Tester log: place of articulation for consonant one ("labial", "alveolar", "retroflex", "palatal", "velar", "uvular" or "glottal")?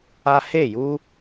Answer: glottal